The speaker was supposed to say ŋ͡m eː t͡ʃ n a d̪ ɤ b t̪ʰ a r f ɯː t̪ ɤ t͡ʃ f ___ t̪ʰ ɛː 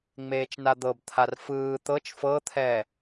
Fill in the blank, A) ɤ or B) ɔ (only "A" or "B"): A